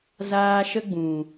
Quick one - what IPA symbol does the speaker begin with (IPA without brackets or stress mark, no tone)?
z